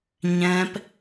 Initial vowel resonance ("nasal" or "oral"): nasal